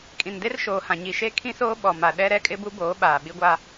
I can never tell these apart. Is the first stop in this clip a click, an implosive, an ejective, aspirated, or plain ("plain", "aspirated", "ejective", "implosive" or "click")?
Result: ejective